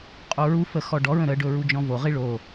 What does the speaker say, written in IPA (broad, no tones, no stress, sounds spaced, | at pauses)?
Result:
qʼ o ɹ u f ə x ɔ ɖ ɔ ɹ ə̃ ɾ ə ɖ ɵ ɹ u d͡ʒ ɔ̃ v o ʁ i ɭ o